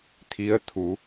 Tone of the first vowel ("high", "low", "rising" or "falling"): rising